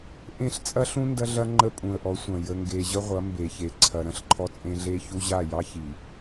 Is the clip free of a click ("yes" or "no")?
no